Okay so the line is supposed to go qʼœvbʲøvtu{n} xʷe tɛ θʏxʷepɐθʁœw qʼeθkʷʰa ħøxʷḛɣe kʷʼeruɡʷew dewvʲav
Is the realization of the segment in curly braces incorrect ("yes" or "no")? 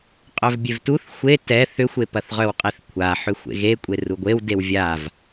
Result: yes